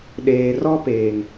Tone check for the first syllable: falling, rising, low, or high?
low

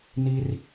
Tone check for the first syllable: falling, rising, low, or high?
high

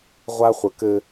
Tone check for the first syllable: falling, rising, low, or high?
high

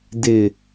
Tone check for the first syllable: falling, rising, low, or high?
low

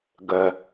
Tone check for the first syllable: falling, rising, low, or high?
low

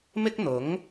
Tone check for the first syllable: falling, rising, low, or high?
high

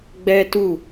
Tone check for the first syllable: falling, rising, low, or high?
high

